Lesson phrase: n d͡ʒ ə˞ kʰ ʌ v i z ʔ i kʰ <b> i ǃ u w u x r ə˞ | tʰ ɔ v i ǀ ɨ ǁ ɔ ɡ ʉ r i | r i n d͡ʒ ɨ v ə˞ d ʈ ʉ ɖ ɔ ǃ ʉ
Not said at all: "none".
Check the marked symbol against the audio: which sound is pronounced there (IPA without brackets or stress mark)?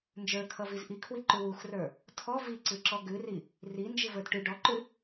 w